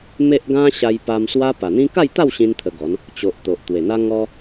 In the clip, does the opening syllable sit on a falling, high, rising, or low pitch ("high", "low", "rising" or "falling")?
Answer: high